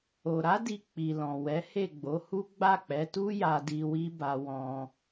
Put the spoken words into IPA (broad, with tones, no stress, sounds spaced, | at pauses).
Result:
o˨ ɾ a˨˦ d i˧ k͡p i˨ l ɔ̃˨ w ɛ˨˦ h e˦˨ ɡ͡b o˨˦ h u˦ ɡ͡b a˦˨ k͡p ɛ˨˦ t u˦ j a˧ d i˧ w i˦ b a˧ w ɔ̃˧